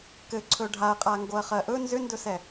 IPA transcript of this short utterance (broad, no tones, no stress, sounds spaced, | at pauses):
k ɘ ǀʰ ɵ ɖʱ a ɐ̯ qʼ a ŋ ɡ o ɐ̯ χ ɜ ʔ ɵ n z ʏ n d ɵ s ɛ